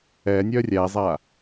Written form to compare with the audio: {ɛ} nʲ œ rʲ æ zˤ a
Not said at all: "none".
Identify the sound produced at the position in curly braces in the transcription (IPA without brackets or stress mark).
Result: ɛ